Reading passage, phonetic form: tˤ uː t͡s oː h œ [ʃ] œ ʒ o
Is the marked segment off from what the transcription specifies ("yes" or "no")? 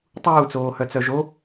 yes